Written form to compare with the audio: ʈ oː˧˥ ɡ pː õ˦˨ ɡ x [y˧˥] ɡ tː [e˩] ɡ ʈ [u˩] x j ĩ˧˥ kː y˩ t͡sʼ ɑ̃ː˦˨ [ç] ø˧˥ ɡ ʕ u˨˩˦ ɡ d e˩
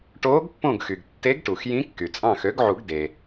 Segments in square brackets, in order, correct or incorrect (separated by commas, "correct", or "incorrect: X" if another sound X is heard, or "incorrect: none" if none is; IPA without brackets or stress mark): incorrect: y˩, incorrect: e˧˥, correct, incorrect: x